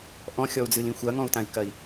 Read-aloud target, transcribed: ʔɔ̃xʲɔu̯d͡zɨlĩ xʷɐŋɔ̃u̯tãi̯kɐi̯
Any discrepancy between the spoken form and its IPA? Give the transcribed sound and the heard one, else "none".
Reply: none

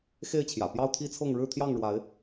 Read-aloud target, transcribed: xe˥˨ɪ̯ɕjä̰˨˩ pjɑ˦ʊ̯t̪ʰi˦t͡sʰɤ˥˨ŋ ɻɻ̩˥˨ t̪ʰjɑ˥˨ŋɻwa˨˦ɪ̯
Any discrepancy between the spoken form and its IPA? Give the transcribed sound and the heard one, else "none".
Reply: ɕ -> t͡ɕʰ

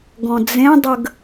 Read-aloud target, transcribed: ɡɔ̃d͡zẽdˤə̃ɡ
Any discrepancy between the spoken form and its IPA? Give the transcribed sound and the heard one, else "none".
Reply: ə̃ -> ə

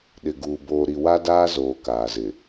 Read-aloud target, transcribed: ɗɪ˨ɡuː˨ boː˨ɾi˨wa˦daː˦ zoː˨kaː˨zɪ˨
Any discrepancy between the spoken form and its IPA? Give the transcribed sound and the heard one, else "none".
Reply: none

